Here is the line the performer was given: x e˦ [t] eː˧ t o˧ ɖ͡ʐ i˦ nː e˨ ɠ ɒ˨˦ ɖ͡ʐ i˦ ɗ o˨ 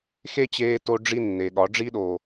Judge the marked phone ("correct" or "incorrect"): incorrect